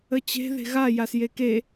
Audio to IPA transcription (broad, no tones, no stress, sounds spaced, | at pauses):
ə t͡ɕ e̤ ð e̤ ɣ a j a s j e k e